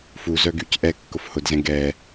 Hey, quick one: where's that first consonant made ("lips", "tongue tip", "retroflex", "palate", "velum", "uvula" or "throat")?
lips